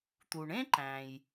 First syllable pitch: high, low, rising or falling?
low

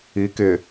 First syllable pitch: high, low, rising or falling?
rising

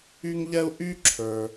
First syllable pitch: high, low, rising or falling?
high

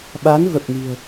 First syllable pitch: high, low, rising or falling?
rising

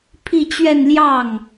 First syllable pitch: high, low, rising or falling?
falling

